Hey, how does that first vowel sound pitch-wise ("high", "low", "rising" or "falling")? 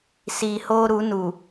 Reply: low